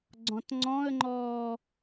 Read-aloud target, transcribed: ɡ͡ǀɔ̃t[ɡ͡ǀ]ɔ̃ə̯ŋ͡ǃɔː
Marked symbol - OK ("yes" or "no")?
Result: no